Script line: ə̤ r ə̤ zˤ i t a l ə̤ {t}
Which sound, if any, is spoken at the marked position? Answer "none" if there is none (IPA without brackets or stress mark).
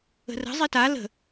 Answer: none